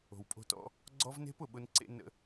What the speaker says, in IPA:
o̤˨wpʼo̤˧tɔ̰˧ | ɡ͡ǀɔ˦vne̤˦pʊ˨ɓʊ˧n ǀḛ˦nə̰˦

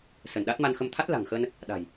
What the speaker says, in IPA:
sə˧˩nɗa˦˥t̚ma˧nxə˧m t̪ʰa˦˥t̚la̤˨˩ŋxə˧n | ɗa̤˨˩j

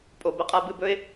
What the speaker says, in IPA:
pʼo˩bə˥qʼa˧ bɨ˧bɵ˥ɪ̯

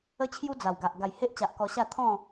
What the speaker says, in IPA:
ə˦t͡ɕʰju˦ d͡za˨˩wɡa˨ʔ ɡa˨˩jhe˦ʔt͡ɕa˨ʔ kɔ˧ɕa˥˧ t̪ʰɔ̃˥˧

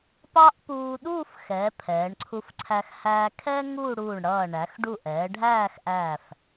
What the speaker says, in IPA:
pɑ˥ʔpuː˧ ɗuː˥˧fxɛ˩˧ pʰɛː˩˧ɳǀʰu˧fǀʰæ˧x hæː˧kʰɛː˥ ŋuː˥˧ɽuː˧˩ɳɽʌː˧˩ ɳæ˩˧xɖu˧˩ʔɛː˩˧ ɖʱæː˥˧xʔæː˧˩f

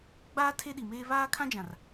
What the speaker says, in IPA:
ɡ͡baː˦ tʰe˦ɗi˨meː˦ βaː˦kʰã˦d͡ʒã˨r

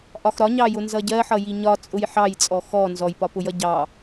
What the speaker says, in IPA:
ʔɒxɾɒɲɑjʊ nzʌɟɜħʌ jiɲɒ t͡sʼʊjħɑjt͡sʼɔ xɔ nzɔjpɒpʊjʌ ɟɑ

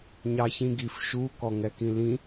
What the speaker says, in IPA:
ɲɑçĩɡif ʃu kɔŋɛkĩlĩ

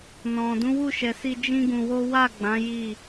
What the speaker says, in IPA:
nɔ̃˨ dũ˨˦wu˦˨ʃɛ˨si˧ d͡ʒĩ˦ɡũ˧wo˦ wa˦˨ɡ͡bã˨˦ ji˦˨

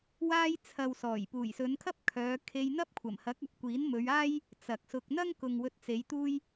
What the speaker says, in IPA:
waː˥j t͡sʰɐ˨wsɔː˨˩j puː˨˩jsɵ˨˧nkʰɐ˥p̚ kʰœː˨˧ kʰe˧jn̪ɐ˥p̚kʷʰɐ˨˩mhɐ˨˥k̚ ɐ˨p̚kʷiː˨˥nmɵ˨˧ɥaː˥j | t͡sɐ˨k̚sʊ˧k̚ n̪ɐ˥ŋkʊ˨ŋ wɵ˧t̚t͡se˨˧j t̪uː˥j

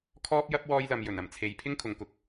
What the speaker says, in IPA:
kʰɔː˥p̚jɐ˥p̚ wɔː˥jlɐ˧mjɵ˨˩n ɐ˨˩mt͡sʰe˨˧j pʰɪ˥ŋkʰʊ˨˧ŋkʊ˨k̚

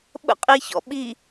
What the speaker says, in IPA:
ɓə̰qʼiçɔ̰ ɓi

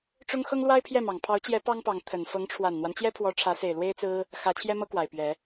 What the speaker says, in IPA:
ʈ͡ʂʊ˥ŋ xɤ˥ŋlwa˥ɪ̯pʰjɛ˥˩mɑ˨˩ŋ pʰɑ˧˥ʊ̯t͡ɕjɛ˧˥ pɑ˥ŋpɑ˧˥ŋ t̪ʰə˨˩n fɤ˧˥ŋʈ͡ʂʰwa˨˩nn̪wa˦n t͡ɕjɛ˥pʰwɔ˧˥ ʈ͡ʂʰä˧˥se˨˩ɪ̯ lwe˥ɪ̯t͡sɹ̩˥ | xä˧˥ t͡ɕʰjɛ˥mɤ˥kwa˨˩ɪ̯ pɥɛ˧˥

